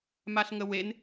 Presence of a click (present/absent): absent